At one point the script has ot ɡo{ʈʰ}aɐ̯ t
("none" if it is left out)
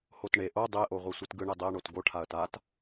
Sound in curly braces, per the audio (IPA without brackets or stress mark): ʈʰ